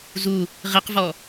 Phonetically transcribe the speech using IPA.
zu | ʁiqvɔ

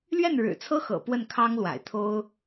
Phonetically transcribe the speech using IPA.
lɥɛ˥˩nɻɻ̩˨˩t͡sʰɤ˥xɤ̰˨˩ pwə˥˩nkʰɑ˥ŋlwa̰˨˩ɪ̯ t̪ʰo˥ʊ̯

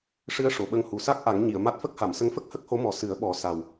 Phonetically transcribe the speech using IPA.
ʂɨ˧ə̯ ʂo˨˩˨ɓə˧ŋ hu˨˩sa˦˥k̚ ʔa˨˩˦ŋ ɲi˨˩˨ə̯ma˦˥t̚ fə˦˥k̚ha˨˩˨msə˧˥ŋfə˦˥k̚ hə˦˥k̚ho˧˥mɔ˨˩˦ sɨ˨˩˦ə̯ɓɔ˨˩˦ sa˨˩w

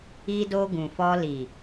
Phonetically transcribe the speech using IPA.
i˧do˧ ɡũ˨fɔ˧li˨

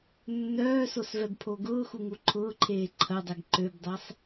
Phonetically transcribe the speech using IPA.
nːœːsosvɛbpʰo ɡʊːxuŋu ǃʰʊːǃʰeː ǃʰɐdˤɛɡ ǃøbdˤɛsˤ

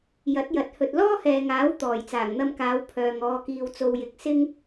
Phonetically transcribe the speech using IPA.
jɐ˨˥t̚jɐ˨˥t̚ hɵ˨t̚lɔː˥hɛː˨ŋaː˨˥w t̪ɔː˨˩jt͡saː˨˩ŋn̪ɐ˧mkaː˨˧w pʰœː˨ŋ ɔː˨kiː˨wt͡so˨wjɪ˨˥k̚ sɪ˥ŋ

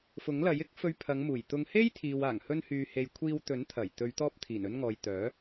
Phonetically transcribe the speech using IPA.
fʊ˨˥ŋlɐ˨˥jɪ˥k̚ fɵ˧ɥpʰɐ˨˧ŋ muː˨˩jt̪ʊ˧ŋ he˥jt̪ʰiː˨w aː˨˩ŋhɵ˧nhyː˨he˨j kʷʰiː˧w t̪ɵ˨˥nt̪ʰɐ˨˩j t̪ɵ˨˧ɥt̪ɔː˧p̚ t̪ʰiː˨˩nɵ˧nŋɔː˨j t̪œː˨˥

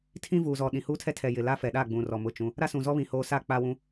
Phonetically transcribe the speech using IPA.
tʰĩ˦vuː˨zɔ˨ ɗĩ˨huː˦tʰɛ˦ tʰɛ˨jɪ˨ la˦fɛ˨ɗa˦˨ɡ͡bũ˨ rɔ˨mʊ˦˨t͡ʃũ˦ | ɾa˦sũ˨zɔ˦ βĩ˨hoː˨sa˦˨ k͡pa˦wũ˦

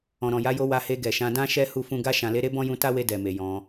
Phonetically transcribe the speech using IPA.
ɔ̃˨ɾɔ̃˨ja˨˦jo˧ wa˧he˧ɡɛ˨ʃã˧ dã˧ʃɛ˧ hu˦fũ˦ ɡa˧ ʃã˨le˧ɾe˧ bɔ̃˦jũ˧ta˦we˧ dɛ˨me˨ jɔ̃˧

